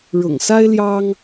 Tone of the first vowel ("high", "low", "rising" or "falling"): low